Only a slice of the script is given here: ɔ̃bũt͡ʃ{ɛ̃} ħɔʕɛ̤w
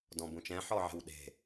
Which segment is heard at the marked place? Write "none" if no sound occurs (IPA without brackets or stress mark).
ɛ̃